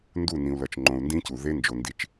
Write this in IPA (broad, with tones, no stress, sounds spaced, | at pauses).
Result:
n d u˦˨ n ĩ˨ u̯ l ʌ˨ t͡ʃ ŋ͡ǃ õ˨ u̯ n d ĩ˦ c u˨ ð e˦ n d͡ʒ o˨ n d i˨˦ t͡ʃ